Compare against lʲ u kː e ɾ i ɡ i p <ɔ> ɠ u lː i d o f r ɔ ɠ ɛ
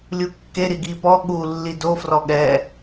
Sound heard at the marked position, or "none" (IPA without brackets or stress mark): ɔ